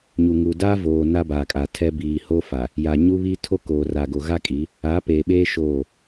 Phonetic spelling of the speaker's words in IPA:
ɲ u˨ ŋ u˨ d a˦ v oː˨ n a˦ b aː˨ kʼ a˨ tʰ ɛ˦ b iː˨ h o˦ f a˨ | j a˨ ɲ u˦ β i˦ tʰ o˦ k oː˨ r a˨ ɡ o˨ ɣ a˦ kʼ i˨˦ | a˨˦ p eː˨ ɓ eː˦ ʃ oː˦˨

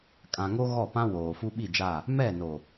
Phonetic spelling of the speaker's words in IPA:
kʼ ã˨ ŋ o˦ ɣ ɔ˦˨ p ã˦ w oː˨ f u˦ ɓ i˦˨ d͡ʒ a˦˨ | m ɛ˦˨ n o˨

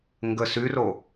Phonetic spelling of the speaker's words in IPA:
ŋ ɡ ə s y r o

